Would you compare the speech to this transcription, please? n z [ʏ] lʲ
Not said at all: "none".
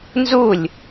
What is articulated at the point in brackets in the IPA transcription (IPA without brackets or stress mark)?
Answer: u